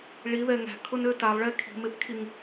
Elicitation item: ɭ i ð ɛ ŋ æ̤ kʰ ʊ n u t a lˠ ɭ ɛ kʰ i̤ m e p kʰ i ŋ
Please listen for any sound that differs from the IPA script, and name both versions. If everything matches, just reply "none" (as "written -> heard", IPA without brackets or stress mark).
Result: u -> ø